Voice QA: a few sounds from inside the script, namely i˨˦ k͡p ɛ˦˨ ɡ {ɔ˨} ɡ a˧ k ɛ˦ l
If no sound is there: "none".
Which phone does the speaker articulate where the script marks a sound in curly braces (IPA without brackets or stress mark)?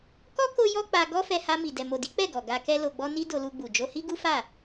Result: ɔ˨